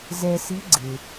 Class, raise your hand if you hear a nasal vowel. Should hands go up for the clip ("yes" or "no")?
no